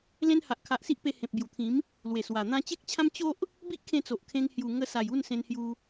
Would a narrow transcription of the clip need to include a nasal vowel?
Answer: yes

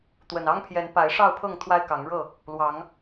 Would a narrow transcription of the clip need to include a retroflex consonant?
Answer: yes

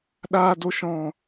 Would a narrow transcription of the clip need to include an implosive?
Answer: yes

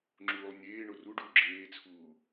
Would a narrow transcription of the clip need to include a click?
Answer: yes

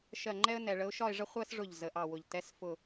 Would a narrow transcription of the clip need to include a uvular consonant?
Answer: yes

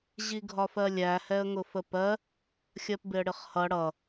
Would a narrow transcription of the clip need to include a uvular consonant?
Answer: yes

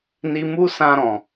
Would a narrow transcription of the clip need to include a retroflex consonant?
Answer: no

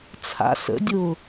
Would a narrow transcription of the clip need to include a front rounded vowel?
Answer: no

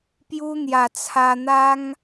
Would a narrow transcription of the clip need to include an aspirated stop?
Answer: yes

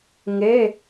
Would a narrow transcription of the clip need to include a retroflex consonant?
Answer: no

